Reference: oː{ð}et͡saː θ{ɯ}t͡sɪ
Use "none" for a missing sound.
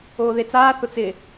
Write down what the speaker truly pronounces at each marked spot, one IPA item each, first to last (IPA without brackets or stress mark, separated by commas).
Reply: ð, ʊ